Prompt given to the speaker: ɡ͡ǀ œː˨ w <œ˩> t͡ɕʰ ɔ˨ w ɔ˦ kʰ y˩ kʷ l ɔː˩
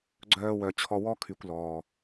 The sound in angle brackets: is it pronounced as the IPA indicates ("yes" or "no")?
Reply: yes